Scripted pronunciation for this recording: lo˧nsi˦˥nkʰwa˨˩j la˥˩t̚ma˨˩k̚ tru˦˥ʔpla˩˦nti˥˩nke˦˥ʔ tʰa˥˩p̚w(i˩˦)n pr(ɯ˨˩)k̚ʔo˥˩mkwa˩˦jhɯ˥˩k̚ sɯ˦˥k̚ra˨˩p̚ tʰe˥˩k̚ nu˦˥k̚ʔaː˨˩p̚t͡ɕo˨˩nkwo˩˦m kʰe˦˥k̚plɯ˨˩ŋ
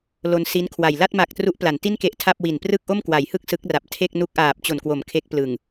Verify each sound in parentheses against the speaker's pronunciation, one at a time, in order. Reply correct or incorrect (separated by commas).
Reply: incorrect, incorrect